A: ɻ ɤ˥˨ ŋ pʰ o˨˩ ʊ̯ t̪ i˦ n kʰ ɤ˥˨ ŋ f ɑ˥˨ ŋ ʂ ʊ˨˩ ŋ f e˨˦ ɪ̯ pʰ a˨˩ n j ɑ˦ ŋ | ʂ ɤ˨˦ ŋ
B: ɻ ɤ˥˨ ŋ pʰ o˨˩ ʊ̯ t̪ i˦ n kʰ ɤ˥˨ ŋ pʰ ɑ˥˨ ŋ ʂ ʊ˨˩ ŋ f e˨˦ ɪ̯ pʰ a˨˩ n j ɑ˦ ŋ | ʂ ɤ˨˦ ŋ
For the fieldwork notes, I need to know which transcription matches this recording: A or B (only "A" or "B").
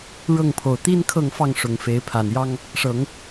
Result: A